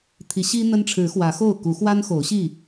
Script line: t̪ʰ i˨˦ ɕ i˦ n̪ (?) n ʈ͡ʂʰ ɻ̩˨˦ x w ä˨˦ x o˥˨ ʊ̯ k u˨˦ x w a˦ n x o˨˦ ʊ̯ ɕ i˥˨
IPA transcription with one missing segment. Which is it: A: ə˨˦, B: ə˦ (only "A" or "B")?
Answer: B